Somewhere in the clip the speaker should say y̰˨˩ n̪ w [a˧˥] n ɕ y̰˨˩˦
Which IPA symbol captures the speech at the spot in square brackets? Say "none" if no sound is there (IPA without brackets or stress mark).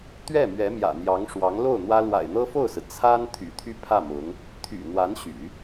a˧˥